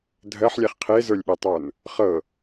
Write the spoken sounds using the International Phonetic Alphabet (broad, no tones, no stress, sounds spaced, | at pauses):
dʱ ɜ ħ lʲ ɛ χ qʰ e z ə˞ lʲ ɓ e tˤ ə˞ n | χ ɤ